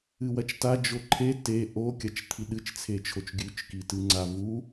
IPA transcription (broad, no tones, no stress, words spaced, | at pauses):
ɨwɐt͡ʃta d͡ʒoǃʰe te ʔokʲɐt͡ʃ t̪ʰiɗɨt͡ʃt͡sʰet͡ʃʰot͡ʃ ɡʲʉt͡ʃkitɨ ŋ͡ǀavu